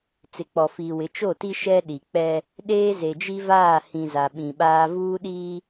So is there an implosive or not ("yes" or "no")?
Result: yes